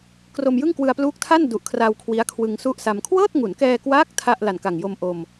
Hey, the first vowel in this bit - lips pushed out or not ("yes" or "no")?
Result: yes